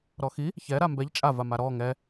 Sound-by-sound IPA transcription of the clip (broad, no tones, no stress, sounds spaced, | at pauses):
ɾ ɔ x i | ç ɛ ɾ a m b ɛ ʎ t͡ʃʼ a v a m a ɾ ɔ ŋ ɛ